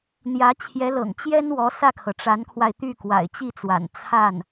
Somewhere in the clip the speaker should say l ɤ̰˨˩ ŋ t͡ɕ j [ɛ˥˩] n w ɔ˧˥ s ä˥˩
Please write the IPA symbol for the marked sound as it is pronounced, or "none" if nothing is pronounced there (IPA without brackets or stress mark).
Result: ɛ˥